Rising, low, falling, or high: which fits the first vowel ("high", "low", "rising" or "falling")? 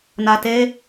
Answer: low